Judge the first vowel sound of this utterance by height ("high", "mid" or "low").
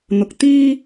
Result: high